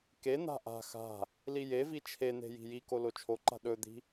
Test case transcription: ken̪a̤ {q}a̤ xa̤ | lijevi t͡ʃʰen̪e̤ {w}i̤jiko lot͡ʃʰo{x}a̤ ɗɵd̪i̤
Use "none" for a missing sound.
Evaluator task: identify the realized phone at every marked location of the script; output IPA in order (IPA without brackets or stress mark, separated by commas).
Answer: ʔ, j, ǃ